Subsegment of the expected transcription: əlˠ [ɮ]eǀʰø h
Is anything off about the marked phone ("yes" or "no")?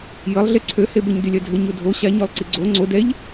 no